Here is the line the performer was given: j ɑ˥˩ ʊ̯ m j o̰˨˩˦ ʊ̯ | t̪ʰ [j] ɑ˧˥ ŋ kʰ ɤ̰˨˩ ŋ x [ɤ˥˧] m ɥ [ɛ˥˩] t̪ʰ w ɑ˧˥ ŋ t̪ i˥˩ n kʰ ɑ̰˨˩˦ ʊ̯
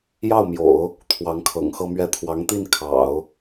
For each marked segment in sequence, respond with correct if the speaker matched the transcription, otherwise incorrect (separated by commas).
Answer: incorrect, correct, correct